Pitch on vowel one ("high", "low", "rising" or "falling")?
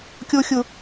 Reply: high